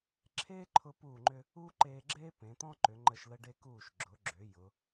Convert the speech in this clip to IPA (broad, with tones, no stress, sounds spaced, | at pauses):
ǁʰ eː˥ ǃʰ ʊ˧ p uː˧˩ ŋ͡ǃ ʏ˧ | uː˥ ǃ eː˧ ɡ͡ǁ eː˥ p ẽ˩˧ t̪ ɔ̃˥ ǃ ʏ˩˧ ŋ͡ǃ ə˧˩ ʃ l ə˧ ɖ e˧ k uː˧˩ ʃ ɡ͡ǁ ʊ˩˧ ɡ͡ǁ ʏ˩˧ j ʊ˩˧